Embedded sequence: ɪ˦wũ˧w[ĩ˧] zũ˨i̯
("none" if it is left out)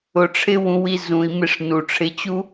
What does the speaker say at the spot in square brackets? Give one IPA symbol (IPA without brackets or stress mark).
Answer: i˧